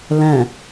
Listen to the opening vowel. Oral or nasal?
nasal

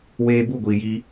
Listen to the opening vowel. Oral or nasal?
oral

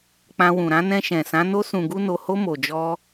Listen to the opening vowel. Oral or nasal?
nasal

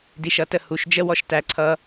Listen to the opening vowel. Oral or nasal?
oral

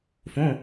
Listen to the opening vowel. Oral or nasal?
nasal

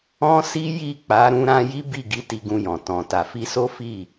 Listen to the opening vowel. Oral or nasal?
nasal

